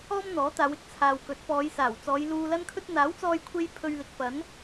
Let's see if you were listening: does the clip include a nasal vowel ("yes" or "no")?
no